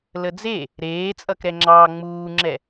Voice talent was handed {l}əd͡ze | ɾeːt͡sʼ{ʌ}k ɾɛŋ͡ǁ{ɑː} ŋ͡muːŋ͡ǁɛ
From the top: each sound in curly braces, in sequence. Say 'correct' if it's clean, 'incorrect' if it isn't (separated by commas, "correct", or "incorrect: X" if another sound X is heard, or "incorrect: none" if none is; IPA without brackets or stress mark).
correct, correct, correct